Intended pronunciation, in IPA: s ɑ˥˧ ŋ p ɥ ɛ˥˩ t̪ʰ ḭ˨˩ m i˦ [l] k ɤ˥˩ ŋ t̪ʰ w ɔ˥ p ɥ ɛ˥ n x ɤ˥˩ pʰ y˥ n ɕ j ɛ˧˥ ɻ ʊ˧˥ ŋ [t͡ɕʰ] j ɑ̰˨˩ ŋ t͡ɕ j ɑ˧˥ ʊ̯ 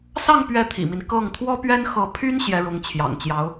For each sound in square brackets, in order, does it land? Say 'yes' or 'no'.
no, yes

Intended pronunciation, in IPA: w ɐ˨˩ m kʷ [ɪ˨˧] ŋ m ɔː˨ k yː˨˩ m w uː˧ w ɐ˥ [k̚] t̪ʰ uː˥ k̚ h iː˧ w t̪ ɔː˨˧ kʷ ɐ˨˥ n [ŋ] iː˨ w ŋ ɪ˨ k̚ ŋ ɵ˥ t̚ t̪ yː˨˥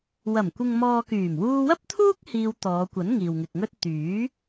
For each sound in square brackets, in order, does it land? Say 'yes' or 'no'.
no, no, yes

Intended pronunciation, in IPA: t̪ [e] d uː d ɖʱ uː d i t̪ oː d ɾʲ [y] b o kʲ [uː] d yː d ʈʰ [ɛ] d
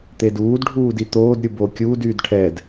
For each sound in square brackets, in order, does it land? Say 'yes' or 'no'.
yes, no, yes, yes

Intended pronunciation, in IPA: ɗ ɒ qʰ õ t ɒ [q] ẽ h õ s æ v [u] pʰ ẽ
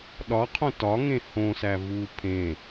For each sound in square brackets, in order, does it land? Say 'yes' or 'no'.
no, yes

